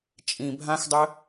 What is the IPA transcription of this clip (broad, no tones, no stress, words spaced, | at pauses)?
t͡ʃʼĩ bʱãxdˤɘ